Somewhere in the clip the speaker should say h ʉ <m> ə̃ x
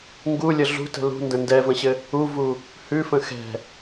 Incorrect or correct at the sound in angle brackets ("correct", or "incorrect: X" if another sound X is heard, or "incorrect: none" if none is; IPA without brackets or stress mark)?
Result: incorrect: f